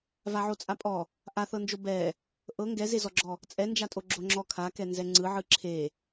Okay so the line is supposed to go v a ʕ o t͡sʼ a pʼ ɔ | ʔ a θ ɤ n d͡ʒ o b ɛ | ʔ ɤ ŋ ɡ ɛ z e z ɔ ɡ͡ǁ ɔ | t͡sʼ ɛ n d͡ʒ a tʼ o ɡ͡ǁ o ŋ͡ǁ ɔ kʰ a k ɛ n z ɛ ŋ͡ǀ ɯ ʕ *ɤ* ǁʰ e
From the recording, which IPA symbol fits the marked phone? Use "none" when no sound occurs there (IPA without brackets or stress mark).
ɯ